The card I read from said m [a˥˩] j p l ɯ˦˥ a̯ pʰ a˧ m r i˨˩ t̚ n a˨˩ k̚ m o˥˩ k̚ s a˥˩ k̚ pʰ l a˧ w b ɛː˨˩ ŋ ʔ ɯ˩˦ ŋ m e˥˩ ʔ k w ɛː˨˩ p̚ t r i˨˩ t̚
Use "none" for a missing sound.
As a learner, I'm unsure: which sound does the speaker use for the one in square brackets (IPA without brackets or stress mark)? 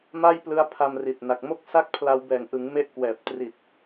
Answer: a˥˩